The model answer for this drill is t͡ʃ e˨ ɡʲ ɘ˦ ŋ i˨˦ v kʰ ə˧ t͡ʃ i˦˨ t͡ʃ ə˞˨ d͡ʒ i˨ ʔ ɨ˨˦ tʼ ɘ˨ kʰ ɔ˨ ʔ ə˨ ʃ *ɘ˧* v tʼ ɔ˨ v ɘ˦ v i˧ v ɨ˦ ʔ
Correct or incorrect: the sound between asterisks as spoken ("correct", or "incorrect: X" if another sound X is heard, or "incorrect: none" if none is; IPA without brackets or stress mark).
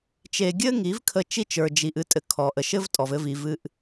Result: incorrect: ɘ˦